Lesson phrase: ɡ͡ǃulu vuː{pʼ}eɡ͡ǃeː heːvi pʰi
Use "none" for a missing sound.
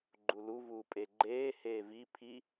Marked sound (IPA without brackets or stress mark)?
pʼ